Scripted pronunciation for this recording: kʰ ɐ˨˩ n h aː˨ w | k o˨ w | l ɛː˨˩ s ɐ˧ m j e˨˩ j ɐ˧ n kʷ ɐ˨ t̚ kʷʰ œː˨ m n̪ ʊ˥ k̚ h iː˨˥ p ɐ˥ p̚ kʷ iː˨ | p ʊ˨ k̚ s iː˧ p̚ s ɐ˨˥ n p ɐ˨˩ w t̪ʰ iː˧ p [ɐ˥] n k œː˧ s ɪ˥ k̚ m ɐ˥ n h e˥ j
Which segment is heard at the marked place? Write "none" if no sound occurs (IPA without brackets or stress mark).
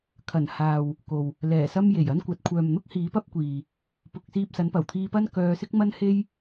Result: ɐ˥